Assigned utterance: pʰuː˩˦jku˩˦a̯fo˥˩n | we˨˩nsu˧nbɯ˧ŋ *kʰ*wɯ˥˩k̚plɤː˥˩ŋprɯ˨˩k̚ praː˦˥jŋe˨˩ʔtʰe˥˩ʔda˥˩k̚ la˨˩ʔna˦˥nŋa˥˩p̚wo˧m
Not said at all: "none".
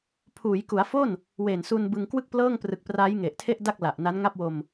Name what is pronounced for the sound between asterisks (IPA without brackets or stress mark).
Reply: k